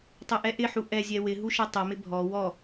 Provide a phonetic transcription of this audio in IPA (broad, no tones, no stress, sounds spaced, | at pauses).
tˤ e ʔ ɛ ʔ ɪ ħ u ʔ ɛ zʲ ɛ w ɪ ɦ u ʃ ɛ tˤ ɛ m ɪ bʱ ɔ w ɔ